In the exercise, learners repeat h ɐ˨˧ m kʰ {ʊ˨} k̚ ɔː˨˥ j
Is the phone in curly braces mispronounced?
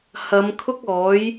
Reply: yes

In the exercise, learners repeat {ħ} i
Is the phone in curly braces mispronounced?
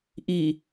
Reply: yes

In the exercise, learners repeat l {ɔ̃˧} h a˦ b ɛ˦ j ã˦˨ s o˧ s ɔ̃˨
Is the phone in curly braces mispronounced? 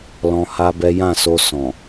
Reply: no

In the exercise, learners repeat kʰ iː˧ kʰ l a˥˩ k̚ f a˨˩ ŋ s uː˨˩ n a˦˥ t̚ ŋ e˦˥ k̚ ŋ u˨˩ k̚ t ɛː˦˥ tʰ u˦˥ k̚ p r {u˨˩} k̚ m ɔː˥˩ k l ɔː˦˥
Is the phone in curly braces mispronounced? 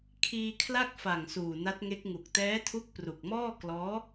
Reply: no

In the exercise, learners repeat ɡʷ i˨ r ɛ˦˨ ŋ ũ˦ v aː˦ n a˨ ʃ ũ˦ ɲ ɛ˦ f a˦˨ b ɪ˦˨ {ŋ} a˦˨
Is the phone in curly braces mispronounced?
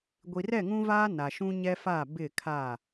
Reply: yes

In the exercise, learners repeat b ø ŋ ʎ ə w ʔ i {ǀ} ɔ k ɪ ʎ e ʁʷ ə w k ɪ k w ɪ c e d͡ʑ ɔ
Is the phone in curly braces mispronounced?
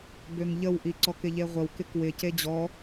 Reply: no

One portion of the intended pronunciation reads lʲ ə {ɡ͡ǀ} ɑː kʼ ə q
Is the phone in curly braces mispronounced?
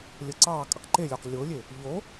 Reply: yes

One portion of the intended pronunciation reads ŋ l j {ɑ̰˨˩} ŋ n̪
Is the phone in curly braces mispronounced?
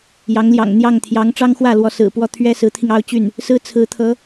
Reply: no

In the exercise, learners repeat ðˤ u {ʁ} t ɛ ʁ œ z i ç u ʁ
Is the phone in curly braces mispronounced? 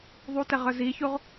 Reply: yes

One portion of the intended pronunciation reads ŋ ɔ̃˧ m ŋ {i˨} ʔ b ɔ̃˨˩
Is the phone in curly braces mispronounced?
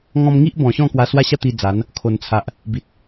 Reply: yes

